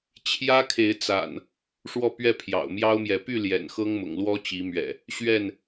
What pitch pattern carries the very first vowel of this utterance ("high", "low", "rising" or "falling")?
high